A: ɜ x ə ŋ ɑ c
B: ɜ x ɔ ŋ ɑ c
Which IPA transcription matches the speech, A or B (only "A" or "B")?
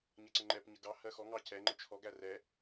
B